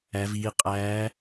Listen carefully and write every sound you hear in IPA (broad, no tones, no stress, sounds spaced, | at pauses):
æ v iː qʼ æː